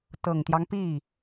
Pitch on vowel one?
low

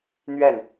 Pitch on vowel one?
falling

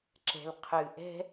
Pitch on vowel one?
low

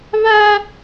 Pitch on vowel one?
high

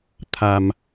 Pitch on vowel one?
low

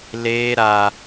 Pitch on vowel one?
high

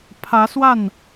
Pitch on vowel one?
rising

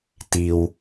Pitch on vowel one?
high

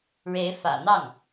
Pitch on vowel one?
rising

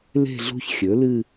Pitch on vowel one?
falling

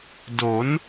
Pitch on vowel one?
rising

